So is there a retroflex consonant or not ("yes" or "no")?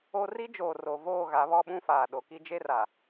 no